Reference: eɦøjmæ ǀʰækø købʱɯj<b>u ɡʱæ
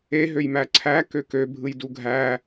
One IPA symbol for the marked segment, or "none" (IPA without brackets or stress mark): d